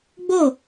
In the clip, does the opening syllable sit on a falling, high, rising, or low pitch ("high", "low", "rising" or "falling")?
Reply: falling